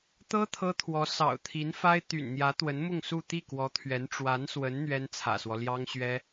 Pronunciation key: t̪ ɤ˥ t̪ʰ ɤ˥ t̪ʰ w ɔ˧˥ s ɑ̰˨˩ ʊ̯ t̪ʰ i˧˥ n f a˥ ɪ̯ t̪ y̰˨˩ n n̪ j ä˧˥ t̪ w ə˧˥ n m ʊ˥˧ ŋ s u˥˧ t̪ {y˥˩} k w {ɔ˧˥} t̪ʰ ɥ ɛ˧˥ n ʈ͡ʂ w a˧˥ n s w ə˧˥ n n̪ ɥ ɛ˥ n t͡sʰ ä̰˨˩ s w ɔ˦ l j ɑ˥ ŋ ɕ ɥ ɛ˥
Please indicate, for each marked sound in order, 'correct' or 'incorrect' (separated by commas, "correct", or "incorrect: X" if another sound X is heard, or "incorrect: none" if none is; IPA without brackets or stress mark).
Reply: incorrect: i˥˩, correct